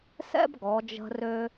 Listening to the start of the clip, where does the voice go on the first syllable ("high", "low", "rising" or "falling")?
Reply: high